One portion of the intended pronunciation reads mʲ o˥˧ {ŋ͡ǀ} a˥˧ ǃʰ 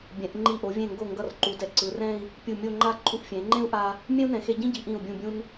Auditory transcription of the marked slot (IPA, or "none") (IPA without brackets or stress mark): ŋ͡ǃ